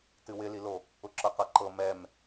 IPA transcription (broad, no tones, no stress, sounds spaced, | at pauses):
t ɨ w ɪ l i l o | ʊ ǁ ɤ q ɤ ǃ ɤ m ɛ m